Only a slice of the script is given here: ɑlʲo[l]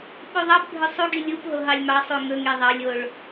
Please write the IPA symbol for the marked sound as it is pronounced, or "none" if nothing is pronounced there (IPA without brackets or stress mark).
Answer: ɭ